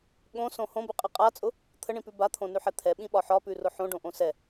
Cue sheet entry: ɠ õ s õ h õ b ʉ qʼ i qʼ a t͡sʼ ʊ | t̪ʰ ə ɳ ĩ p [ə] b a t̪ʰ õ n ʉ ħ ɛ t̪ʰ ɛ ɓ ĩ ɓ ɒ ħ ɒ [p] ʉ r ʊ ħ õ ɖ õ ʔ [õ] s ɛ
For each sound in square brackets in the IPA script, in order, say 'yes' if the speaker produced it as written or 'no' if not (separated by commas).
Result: no, yes, yes